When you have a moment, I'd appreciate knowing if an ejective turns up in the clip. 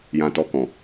no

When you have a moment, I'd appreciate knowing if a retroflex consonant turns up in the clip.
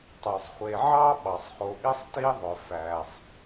no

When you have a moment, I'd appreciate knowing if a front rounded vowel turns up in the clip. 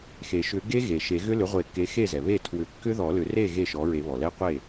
yes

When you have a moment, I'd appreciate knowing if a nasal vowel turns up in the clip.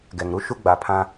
yes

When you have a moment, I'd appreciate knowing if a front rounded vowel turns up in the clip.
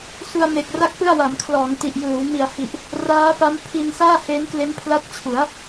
no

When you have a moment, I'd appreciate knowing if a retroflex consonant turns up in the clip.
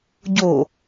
no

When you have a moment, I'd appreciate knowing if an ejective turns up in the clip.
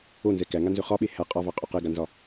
yes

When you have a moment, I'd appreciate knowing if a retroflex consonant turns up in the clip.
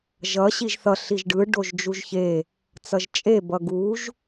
yes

